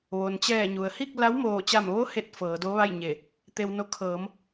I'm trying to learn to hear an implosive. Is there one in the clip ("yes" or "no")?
no